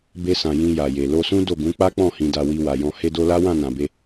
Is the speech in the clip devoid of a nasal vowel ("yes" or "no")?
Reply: no